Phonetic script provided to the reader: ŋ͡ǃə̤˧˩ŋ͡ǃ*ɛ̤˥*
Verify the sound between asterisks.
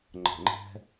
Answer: correct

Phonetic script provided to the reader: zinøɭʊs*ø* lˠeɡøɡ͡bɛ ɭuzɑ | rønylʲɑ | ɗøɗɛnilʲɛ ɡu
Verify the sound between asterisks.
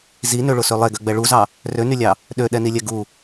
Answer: correct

